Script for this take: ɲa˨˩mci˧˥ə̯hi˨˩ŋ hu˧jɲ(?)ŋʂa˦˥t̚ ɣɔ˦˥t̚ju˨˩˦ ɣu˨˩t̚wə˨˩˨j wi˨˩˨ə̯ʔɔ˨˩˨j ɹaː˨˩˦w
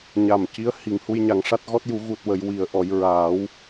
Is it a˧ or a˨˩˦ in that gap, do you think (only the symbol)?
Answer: a˨˩˦